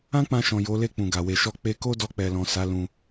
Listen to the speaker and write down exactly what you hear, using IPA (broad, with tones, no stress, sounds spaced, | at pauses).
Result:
ã˦ k͡p ã˧ ʃ ɔ̃˨ j o˨˦ l e˦˨ k͡p ũ˨ ɡ a˨ w e˨ ʃ ɔ˧ k͡p e˧ k o˦ d ɔ˧ k͡p ɛ˨ l ɔ̃˨ s a˨˦ l ũ˧